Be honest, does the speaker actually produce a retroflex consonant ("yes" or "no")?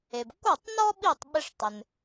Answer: yes